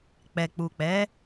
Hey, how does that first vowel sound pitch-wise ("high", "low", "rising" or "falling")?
low